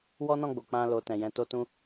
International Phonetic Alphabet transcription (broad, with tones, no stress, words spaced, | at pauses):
wɔ˦nɔ̃˦˨ɡ͡bo˨ k͡pã˧lo˨ tɛ̃˨jɛ̃˧to˦tũ˦